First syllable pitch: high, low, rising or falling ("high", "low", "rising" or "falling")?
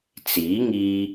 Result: rising